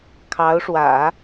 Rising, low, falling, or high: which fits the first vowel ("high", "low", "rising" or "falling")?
rising